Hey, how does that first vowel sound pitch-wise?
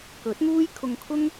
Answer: rising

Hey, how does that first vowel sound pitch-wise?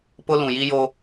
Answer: high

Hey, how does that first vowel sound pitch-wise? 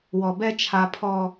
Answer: low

